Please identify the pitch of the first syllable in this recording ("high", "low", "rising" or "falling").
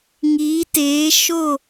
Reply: rising